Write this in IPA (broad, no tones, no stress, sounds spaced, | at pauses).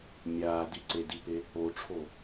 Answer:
mʲ aː d i ǀ e d i p e | o ʈ͡ʂʰ o